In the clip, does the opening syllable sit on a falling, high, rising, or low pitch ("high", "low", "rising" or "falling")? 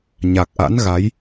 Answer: low